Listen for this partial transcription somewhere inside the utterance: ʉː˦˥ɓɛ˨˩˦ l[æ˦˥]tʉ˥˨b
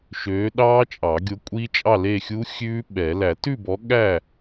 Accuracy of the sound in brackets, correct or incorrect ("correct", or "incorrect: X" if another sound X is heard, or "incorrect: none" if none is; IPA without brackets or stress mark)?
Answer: incorrect: æ˨˩˦